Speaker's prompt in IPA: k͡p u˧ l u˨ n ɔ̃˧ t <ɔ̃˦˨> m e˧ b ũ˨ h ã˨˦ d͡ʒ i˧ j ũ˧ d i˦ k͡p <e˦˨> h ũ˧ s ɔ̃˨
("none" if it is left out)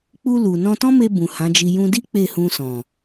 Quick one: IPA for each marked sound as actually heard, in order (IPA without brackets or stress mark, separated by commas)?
ɔ̃˦, e˦˨